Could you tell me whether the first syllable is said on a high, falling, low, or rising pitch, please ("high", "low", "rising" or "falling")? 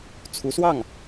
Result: rising